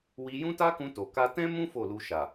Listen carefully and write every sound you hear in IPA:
w i˧ j ũ˦ t a˦ k ũ˧ t o˨ k a˧ t ɛ̃˦ m ũ˦ f o˦˨ l u˧ ʃ a˨

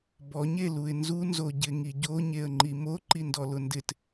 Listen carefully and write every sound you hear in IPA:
b ɔ ɲ e l u ɪ̯ n z u n z o ɟ ɪ ŋ i ɟ o ɲ e ə̯ ŋ͡ǃ i m o ǃ i n d ɔ l ʊ n d ɪ t

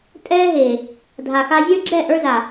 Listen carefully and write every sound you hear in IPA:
tʼ ɛː˧ ɦ e˨ | dʱ a˨ x a˧ zʲ ə˞˦ ɡ͡ǁ ɛ˦˨ ʔ ə˞˧ z a˨

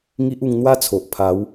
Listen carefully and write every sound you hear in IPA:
ŋ i˦ ʔ u˧ ŋ n̪ w a˦ t͡sʰ o˨ ʔ pʰ a˨˦ w

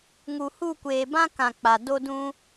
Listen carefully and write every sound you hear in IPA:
ŋ u˨ h u˦˨ kʷ eː˨ b ã˦ k ã˨ k͡p a˨ d o˦ d ũ˦

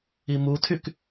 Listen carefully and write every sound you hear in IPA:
i m u tʰ y k

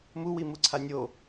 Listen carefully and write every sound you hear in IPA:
m u w i m u ǀʰ a nʲ o

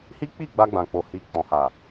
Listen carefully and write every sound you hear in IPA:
h i˦ k͡p i˦˨ ɡ͡b a˧ ɡ͡b ã˨ k͡p o˨ h i˨ k͡p ɔ̃˨ h a˨

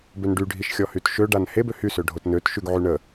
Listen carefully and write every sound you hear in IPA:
b ø n ɖ y ɖʱ i ʃ xʲ ɔ h y t ʃ ø ɖ a n h e b ø h y s ø ɖʱ o t n ø t ʃ y ɡ ʕ y ɳ ə

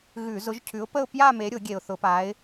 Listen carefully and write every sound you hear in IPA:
ɣ ʉ˧˩˧ z ʊ˨˦ ʒ cʰ ʉ˨˦ ʊ̯ p ə˥˧ ʊ̯ p j a˥˧ m e˨˦ ɾʲ ʊ˧˩˧ ɡʲ e˨˩ ʊ̯ θ ʊ˧˩˧ p a˨˦ ɪ̯

